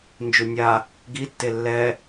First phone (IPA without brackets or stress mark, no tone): n